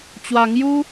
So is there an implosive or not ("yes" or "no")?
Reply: no